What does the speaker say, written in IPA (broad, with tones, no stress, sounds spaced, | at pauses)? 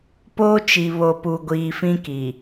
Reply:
p oː˦ t͡ʃ i˨ β o˨ p u˨ ɡʷ iː˨ f ĩ˦ k i˨